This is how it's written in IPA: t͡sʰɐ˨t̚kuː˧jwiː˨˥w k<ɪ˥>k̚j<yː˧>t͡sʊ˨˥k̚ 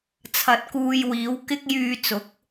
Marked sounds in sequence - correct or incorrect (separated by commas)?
correct, correct